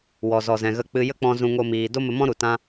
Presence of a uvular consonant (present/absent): absent